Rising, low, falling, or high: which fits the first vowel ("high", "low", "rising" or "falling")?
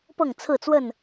falling